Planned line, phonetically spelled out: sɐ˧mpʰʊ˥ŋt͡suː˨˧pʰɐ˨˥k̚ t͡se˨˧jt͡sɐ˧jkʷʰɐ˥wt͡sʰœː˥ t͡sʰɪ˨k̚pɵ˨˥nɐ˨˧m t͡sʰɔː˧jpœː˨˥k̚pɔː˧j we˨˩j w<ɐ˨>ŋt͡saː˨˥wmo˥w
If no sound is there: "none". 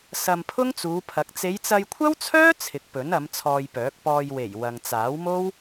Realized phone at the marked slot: ɐ˨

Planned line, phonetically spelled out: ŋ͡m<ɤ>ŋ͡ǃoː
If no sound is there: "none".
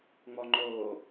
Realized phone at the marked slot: ɔ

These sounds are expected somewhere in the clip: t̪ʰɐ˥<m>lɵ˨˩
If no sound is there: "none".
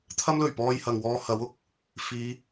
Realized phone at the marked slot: m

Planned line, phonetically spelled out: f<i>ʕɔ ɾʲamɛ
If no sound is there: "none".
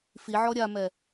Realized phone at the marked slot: i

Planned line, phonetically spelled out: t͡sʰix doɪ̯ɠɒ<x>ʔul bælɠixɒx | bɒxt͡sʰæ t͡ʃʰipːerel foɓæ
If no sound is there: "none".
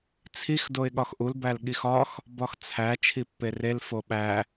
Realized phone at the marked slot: x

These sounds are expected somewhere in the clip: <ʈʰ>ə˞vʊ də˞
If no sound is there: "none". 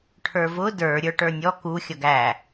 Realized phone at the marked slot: ʈʰ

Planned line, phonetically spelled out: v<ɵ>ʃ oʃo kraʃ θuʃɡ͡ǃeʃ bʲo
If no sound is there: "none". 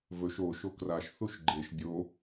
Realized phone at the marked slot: ɵ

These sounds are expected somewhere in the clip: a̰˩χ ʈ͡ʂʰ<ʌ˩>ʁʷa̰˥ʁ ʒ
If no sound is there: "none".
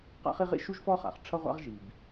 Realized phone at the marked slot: ʌ˥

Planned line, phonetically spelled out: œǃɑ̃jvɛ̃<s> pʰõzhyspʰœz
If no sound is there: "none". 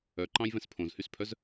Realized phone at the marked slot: s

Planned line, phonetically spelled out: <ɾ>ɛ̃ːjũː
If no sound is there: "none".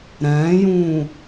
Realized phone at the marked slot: ɾ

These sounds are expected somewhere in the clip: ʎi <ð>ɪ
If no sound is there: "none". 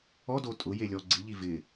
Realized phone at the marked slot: v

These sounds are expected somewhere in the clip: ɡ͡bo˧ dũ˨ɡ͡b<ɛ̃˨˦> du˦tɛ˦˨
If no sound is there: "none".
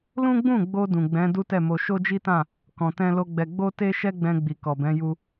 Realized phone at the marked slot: ɛ̃˨˦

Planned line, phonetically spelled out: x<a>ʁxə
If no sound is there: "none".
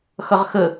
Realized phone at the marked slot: ʌ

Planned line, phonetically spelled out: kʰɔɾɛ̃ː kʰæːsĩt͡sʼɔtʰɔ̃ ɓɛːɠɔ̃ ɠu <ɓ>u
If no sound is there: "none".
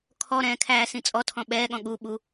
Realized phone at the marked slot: ɓ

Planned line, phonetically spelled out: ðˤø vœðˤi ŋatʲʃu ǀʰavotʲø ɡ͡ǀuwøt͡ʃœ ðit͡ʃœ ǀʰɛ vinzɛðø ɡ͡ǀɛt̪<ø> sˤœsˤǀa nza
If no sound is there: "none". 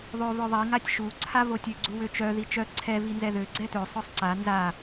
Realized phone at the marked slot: ø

